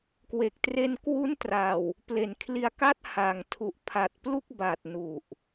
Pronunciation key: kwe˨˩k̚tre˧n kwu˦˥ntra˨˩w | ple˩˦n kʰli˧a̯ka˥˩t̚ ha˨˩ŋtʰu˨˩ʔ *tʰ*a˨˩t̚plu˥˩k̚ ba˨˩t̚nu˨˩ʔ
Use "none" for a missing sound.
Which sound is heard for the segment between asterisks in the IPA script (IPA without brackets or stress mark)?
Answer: pʰ